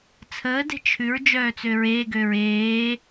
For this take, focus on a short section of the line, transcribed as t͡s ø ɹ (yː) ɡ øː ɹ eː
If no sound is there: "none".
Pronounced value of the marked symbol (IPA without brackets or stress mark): eː